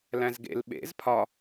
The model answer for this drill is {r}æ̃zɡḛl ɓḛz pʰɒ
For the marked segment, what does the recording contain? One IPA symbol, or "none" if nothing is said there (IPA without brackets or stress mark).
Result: l